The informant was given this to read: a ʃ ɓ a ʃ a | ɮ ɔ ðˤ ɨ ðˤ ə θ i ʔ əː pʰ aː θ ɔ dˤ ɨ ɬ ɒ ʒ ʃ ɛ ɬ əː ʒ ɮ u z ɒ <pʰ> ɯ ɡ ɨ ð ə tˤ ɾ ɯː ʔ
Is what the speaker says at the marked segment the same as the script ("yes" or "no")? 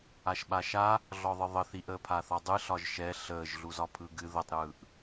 yes